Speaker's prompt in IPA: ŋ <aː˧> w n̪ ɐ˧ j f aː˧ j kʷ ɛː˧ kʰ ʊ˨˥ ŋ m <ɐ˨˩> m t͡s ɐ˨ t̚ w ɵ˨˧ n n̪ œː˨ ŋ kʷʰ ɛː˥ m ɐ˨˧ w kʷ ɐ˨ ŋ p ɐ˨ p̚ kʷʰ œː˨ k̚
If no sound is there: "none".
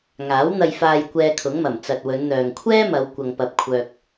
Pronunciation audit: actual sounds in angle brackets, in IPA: aː˨˥, ɐ˨˩

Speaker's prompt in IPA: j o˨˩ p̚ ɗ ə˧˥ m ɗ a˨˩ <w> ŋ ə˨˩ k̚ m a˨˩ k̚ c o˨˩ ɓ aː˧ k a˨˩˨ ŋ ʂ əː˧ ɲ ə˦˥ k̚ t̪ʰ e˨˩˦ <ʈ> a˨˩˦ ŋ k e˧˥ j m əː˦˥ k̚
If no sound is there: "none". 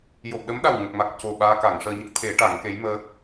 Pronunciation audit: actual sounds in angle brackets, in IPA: w, ʈ

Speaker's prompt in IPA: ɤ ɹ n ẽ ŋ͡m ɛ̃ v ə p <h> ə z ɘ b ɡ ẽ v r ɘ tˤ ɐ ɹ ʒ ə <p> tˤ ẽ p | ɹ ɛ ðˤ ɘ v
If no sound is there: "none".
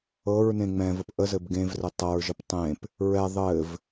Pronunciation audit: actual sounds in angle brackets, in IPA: ʔ, p

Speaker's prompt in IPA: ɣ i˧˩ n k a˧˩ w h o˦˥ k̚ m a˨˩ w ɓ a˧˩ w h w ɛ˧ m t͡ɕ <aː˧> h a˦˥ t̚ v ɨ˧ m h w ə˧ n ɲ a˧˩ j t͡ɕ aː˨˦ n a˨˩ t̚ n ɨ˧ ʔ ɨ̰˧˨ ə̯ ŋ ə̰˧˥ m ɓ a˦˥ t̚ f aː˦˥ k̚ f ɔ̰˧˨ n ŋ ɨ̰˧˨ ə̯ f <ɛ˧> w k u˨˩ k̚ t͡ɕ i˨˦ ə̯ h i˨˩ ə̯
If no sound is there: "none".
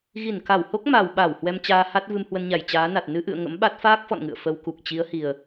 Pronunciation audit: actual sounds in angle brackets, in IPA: aː˧, ə˧

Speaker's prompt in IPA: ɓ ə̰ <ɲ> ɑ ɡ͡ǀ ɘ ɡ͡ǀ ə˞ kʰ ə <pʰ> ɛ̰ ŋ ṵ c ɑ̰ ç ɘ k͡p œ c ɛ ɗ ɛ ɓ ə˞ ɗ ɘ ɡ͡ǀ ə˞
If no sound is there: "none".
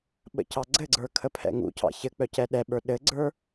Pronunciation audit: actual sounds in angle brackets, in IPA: c, pʰ

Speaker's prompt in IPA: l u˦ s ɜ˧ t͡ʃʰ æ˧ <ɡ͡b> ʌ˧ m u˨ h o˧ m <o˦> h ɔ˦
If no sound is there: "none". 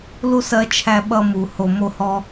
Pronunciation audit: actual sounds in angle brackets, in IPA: ɓ, o˦

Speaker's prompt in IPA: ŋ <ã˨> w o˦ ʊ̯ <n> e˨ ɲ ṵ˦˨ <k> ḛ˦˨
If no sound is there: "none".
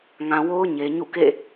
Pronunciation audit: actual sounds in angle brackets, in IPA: ã˨, ɲ, k

